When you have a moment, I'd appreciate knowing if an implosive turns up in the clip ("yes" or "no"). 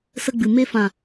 no